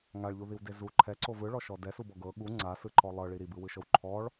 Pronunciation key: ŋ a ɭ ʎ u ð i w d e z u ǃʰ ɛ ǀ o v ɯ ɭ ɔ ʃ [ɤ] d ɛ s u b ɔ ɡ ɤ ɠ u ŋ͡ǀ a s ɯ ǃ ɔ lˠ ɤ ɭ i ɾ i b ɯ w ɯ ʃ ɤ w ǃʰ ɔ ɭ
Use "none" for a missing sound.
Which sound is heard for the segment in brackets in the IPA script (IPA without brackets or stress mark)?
ɔ